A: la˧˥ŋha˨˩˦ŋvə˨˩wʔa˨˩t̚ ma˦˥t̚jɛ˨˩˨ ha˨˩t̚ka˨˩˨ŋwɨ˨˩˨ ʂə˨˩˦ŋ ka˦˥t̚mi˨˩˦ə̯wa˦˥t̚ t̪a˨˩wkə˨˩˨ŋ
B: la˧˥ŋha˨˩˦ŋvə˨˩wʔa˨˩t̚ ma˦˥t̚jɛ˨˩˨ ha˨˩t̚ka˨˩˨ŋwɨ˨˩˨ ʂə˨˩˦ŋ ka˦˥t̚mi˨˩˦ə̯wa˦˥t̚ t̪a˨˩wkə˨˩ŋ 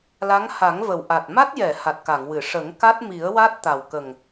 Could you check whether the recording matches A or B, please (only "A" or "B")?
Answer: B